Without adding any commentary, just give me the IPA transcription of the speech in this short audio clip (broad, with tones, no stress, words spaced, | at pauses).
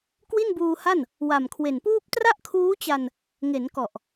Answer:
kwi˥˩nbuː˧ha˥˩n | wa˨˩mkʰwe˨˩npuː˥˩p̚ tra˥˩ʔkʰuː˦˥t͡ɕa˧n | ŋe˩˦nkɔ˨˩ʔ